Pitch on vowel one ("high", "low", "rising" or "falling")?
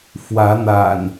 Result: rising